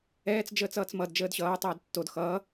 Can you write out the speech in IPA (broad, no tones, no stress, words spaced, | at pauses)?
ɛːt͡s d͡ʒəːt͡sʌːt͡smʌd d͡ʒəːdɕʌː tˤɛːdtːod xʌː